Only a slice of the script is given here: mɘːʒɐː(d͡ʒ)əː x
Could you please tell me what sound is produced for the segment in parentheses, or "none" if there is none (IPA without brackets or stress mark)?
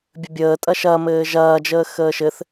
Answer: d͡ʒ